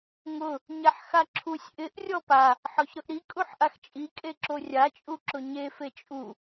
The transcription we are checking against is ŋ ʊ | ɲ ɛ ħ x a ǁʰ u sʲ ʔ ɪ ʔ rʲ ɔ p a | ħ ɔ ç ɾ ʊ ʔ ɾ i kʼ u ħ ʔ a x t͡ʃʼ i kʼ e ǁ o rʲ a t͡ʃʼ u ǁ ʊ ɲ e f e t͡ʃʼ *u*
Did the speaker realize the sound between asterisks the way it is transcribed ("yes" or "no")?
yes